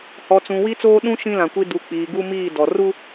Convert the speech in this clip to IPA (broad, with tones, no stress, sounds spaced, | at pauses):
h ɔ˨ t͡s ũ˨ w i˦ t͡s oː˦ ɗ ũ˦ ʃ ĩ˦ l ã˨ kʷ i˦ d u˨ k͡p iː˨ ɡ u˦ m iː˦˨ d ɔ˨ r u˦